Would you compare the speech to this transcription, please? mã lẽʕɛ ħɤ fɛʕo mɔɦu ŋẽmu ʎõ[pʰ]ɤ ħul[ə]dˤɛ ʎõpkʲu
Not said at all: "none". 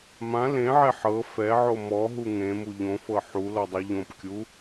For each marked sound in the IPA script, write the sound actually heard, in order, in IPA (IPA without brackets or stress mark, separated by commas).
f, ɔ